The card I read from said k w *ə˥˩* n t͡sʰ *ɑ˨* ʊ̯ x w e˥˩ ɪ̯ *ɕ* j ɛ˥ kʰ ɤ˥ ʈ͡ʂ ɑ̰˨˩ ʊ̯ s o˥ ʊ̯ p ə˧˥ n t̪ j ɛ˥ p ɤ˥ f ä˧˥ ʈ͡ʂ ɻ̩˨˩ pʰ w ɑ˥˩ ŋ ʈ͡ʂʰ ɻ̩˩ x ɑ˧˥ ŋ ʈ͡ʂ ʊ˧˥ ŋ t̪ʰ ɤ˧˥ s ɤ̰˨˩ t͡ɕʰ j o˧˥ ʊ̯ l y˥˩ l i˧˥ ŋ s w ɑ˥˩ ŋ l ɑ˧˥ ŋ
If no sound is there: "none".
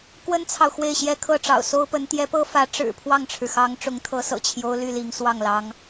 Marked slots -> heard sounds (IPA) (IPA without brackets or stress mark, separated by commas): ə˥, ɑ˨, ɕ